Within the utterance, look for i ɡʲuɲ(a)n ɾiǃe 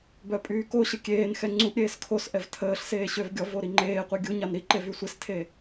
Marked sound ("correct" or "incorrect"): correct